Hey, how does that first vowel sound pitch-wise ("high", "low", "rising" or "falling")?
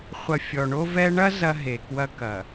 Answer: low